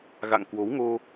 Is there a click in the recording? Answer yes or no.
no